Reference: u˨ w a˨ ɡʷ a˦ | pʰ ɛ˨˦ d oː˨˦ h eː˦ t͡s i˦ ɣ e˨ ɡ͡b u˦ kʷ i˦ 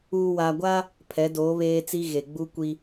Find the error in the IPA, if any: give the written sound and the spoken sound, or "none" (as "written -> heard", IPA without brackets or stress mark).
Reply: h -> β